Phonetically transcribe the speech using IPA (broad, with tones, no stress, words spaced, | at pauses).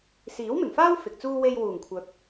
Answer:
siː˨˥wmɪ˨˩ŋfaː˥w fɪ˨k̚t͡suː˥ we˧jwuː˨˩ŋkʷʰœː˨p̚